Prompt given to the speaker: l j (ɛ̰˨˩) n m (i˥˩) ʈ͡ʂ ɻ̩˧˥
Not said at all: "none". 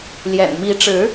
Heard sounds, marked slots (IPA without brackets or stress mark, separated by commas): ɛ̰˨˩, i˧˥